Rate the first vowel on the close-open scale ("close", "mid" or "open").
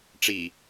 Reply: close